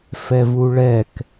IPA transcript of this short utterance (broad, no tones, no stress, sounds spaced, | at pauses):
f ɛ v u ɭ ɛ k